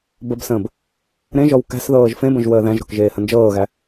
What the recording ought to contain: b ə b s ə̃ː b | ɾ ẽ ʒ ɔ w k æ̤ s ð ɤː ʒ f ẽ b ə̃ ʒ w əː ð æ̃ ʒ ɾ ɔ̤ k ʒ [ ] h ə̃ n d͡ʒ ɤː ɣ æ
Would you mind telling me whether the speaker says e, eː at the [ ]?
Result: eː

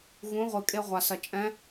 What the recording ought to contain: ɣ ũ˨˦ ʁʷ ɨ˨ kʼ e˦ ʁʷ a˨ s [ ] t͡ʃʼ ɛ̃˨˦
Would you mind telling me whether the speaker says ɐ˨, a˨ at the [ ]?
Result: ɐ˨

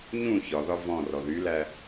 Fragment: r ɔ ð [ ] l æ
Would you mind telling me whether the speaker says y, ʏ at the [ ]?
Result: y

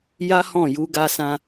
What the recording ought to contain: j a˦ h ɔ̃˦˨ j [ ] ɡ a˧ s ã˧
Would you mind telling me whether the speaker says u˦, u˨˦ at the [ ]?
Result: u˨˦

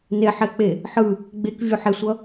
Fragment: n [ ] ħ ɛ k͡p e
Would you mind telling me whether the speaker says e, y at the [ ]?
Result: e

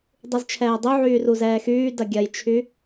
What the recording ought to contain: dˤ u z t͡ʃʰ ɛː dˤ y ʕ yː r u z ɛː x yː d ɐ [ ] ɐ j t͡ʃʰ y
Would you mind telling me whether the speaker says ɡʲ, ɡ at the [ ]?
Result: ɡʲ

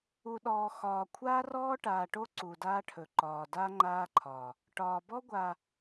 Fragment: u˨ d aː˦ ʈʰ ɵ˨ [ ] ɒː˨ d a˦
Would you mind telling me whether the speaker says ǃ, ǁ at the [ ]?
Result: ǃ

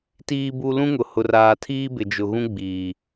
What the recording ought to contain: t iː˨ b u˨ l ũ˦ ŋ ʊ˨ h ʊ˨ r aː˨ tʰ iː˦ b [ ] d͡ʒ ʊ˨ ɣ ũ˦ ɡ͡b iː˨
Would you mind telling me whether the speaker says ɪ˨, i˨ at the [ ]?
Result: ɪ˨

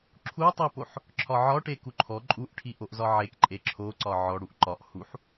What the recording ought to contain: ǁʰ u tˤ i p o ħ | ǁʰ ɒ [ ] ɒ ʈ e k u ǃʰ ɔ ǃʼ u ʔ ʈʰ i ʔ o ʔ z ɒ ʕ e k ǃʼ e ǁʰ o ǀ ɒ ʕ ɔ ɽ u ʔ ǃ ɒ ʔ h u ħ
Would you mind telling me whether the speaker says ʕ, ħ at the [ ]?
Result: ʕ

